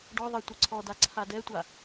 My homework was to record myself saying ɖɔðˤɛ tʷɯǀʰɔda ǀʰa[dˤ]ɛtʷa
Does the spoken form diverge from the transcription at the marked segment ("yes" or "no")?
yes